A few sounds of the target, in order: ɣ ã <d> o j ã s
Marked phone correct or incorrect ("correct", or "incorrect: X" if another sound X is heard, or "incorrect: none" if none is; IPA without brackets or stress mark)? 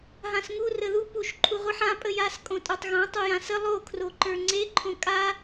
incorrect: tˤ